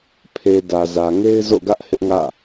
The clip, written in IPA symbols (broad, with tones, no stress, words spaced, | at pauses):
pʰe˨ dä˨zä˨ŋe˦ɪ̯ zo̰˦˨ɡä˦ʔ hɪ˦ʔŋä̰˦˨